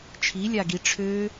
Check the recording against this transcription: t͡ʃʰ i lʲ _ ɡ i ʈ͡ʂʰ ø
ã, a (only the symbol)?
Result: a